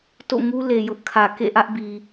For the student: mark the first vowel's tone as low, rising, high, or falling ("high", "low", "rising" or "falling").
falling